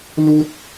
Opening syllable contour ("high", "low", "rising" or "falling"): high